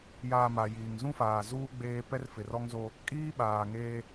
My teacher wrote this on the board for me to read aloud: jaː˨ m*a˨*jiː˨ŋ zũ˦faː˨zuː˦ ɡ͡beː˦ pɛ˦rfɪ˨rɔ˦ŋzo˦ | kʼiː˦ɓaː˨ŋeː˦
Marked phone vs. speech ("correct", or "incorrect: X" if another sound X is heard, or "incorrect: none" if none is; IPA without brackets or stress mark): correct